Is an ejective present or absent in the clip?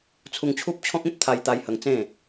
absent